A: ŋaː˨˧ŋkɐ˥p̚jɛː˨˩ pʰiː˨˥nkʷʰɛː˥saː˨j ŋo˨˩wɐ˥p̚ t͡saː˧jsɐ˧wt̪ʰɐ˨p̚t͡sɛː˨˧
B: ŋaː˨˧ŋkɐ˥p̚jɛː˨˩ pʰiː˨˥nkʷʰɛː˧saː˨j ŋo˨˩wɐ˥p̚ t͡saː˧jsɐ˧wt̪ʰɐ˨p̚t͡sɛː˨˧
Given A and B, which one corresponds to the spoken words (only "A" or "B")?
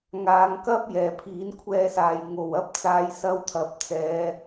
B